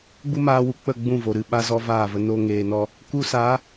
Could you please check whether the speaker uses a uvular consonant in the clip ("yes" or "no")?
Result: no